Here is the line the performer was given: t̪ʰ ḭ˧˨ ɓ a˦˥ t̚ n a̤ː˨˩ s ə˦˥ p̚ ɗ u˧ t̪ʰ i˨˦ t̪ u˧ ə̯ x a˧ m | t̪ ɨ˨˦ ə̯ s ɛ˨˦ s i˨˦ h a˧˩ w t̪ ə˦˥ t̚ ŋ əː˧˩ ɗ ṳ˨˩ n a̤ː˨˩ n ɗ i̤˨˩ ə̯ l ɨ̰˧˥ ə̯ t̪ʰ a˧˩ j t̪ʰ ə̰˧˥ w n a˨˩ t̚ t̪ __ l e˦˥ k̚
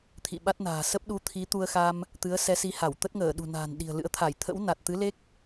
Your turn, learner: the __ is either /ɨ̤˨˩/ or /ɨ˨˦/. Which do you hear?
ɨ˨˦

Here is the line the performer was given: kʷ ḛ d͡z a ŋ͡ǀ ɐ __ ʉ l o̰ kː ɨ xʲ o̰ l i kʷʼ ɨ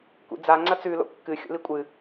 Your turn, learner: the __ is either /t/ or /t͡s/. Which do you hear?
t͡s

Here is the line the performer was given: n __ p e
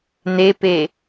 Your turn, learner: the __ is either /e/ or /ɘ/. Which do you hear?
e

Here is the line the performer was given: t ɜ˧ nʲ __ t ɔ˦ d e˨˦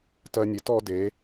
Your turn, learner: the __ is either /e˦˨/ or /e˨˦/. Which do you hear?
e˨˦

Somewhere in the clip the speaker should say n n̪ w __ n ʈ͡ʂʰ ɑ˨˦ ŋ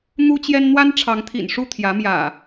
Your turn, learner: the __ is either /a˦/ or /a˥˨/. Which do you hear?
a˦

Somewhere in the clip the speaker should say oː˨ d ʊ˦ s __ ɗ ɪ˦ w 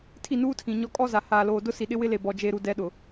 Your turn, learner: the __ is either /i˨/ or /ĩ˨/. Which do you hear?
i˨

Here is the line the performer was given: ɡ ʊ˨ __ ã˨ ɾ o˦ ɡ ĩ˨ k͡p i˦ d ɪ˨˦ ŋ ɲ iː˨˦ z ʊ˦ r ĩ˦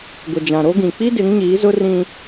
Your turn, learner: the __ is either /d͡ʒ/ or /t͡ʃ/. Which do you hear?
d͡ʒ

